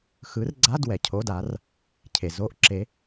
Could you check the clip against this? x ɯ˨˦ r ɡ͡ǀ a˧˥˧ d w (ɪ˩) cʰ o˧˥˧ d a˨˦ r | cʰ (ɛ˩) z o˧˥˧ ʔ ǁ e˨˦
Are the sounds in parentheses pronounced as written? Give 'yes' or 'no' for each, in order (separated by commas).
no, no